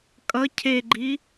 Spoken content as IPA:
kʼ ʌ cʰ e ɡ͡ǃ i

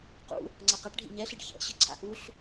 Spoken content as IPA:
q ṵ | ŋ͡ǀ a q a ʈ ɖʱ ḭ ɲ ɛ ɬ i ɖ ç ɛ̰ ɕ ɯ ǀʰ a̰ ʔ u ɬ

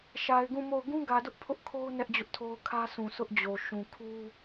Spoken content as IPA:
ʃ a˨ ɪ̯ ɡ ũ˦˨ m o˦˨ ʊ̯ ɡ ũ˦ ɡ ä˨ d ʊ˦ ʔ pʰ ʊ˦ ʔ kʰ o˦ ʊ̯ n ɛ˦ ʔ d͡ʑ ʊ˦ ʔ tʰ o˦ ʊ̯ kʰ ä˦ s ũ˨ sʰ ʊ˦ ʔ d͡ʑ o˨ ʃ ũ˨ kʰ u˦

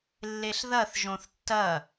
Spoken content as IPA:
lː e ɬ ð ɐ θ ʒ õ θ tː ɐ

